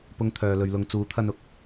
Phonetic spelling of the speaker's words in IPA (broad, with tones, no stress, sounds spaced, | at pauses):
p ʊ˧ ŋ t̪ʰ œː˨ l ɵ˨ ɥ l ʊ˨˧ ŋ t͡s uː˨˥ t̪ʰ ɐ˧ n ʊ˧ k̚